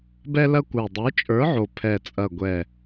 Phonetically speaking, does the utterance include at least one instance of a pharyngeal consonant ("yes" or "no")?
yes